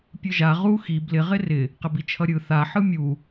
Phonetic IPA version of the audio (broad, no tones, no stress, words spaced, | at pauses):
pʲɯʒa ʁu xi blɪ ʁɪrɪ | qɪbit͡ʃʰʌɾʲɯ θa ħɯmʲu